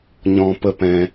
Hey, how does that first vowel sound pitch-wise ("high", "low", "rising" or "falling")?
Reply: high